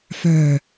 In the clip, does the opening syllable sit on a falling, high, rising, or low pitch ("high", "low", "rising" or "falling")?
low